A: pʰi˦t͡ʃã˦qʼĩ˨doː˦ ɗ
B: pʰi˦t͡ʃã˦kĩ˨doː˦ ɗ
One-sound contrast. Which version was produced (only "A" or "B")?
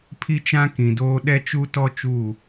B